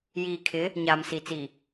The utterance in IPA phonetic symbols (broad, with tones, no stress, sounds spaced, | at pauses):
j iː˨ kʰ ɪ˨˦ | ɲ aː˨ m s i˨ t͡s i˨